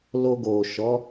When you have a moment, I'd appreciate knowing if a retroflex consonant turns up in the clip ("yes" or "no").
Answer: no